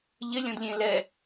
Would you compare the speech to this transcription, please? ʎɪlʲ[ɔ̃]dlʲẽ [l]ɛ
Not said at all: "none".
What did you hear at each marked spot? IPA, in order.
ɔ̃, l

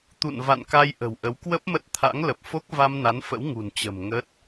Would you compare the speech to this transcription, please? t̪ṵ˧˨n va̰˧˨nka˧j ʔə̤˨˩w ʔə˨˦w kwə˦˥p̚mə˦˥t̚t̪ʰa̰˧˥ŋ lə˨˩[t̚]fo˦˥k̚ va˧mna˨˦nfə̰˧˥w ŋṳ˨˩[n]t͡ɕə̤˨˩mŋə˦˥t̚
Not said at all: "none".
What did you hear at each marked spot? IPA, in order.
p̚, n

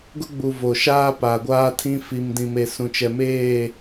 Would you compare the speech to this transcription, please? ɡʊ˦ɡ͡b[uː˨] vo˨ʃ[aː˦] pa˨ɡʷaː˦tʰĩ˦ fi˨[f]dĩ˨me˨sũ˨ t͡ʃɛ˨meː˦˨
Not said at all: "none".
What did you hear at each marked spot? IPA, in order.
u˨, aː˦, m

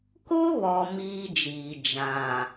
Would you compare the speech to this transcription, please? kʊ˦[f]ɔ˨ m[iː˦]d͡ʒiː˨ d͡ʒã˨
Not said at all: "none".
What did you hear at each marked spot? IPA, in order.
β, iː˦

